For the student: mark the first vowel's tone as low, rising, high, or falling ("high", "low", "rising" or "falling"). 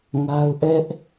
high